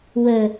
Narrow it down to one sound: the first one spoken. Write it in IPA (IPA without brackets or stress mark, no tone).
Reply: w